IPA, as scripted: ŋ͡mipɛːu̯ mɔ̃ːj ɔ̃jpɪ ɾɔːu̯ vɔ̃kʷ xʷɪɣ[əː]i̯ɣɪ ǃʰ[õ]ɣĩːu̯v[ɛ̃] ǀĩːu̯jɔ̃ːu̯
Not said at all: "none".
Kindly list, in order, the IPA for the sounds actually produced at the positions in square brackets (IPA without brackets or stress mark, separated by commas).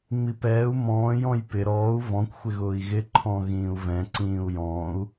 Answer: ʊː, ɔ̃, ɛ̃